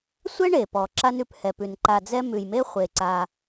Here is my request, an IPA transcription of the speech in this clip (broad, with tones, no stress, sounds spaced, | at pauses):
sʷ ɛ˥ ɳ e˩ p ɔ˩ ǁ a˥ n ʉ˨ p h ɛ˨ p ʉ˨ n ǃ a˨ d͡z ɛ˦ m ʉ˩ j m e˥ χʷ e˩ ǀ a˨